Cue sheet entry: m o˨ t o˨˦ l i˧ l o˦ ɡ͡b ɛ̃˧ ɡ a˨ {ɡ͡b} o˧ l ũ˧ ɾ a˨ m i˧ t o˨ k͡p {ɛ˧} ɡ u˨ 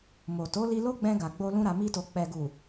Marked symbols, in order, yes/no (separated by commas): yes, no